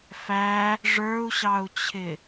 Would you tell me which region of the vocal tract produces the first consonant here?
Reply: lips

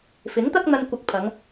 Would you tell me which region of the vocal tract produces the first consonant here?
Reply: lips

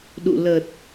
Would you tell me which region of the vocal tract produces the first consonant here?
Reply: tongue tip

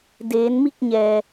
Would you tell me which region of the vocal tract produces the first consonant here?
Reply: tongue tip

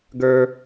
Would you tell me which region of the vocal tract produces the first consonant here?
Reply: velum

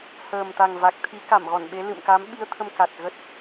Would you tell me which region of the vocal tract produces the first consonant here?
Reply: throat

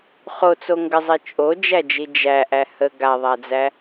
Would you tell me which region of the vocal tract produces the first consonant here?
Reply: uvula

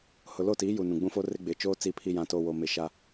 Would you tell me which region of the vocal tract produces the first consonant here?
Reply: throat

